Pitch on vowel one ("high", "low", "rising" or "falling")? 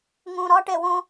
low